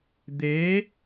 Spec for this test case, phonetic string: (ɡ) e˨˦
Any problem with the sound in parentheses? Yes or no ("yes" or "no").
yes